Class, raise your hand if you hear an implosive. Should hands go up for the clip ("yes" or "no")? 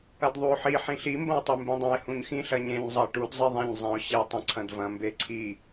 no